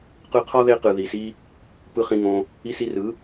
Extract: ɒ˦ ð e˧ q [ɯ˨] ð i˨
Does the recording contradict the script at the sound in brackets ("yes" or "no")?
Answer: no